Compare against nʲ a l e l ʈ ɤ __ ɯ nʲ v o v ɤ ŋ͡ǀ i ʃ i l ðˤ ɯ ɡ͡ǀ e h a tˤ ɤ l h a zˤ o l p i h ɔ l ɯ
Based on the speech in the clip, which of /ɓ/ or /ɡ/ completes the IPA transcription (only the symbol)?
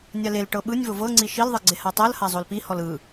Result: ɓ